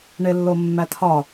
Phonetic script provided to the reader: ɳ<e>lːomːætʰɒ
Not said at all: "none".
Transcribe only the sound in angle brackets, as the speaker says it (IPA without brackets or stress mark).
e